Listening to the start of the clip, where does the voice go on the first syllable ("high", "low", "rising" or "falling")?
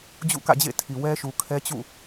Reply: falling